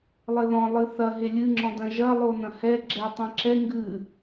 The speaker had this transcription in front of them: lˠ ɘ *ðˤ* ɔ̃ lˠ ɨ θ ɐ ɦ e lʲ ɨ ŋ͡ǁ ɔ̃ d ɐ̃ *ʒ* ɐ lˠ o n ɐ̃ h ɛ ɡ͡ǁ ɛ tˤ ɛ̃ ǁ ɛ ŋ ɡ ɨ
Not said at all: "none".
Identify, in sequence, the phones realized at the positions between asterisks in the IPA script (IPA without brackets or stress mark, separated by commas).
ð, ʒ